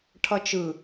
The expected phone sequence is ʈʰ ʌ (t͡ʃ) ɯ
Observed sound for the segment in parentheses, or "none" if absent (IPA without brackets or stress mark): t͡ʃ